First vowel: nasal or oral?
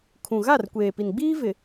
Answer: nasal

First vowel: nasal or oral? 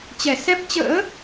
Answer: oral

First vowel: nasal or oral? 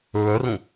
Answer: oral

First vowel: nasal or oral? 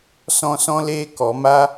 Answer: nasal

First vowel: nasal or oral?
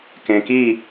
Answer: nasal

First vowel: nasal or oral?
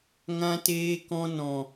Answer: nasal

